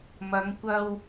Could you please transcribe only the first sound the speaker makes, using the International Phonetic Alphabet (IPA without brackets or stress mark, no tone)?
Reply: m